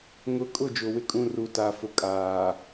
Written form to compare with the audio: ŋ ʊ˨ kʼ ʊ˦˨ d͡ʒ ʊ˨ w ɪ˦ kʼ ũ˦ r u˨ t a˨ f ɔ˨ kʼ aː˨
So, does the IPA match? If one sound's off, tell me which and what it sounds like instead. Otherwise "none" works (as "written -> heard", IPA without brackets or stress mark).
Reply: ɔ˨ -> ʊ˨